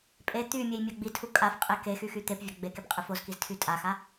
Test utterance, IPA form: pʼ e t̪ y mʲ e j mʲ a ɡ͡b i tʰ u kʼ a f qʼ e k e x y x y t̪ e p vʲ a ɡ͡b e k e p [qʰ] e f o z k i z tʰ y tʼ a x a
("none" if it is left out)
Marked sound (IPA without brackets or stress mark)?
qʼ